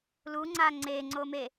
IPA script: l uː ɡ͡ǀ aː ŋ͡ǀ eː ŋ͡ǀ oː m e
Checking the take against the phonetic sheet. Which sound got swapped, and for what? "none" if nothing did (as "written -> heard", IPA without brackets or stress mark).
ɡ͡ǀ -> ŋ͡ǀ